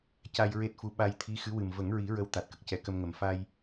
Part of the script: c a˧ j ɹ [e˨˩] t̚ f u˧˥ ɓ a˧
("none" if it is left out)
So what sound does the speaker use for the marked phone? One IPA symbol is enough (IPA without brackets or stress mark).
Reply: e˦˥